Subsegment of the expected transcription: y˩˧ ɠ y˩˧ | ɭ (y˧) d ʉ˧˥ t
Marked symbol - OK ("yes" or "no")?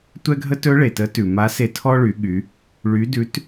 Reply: no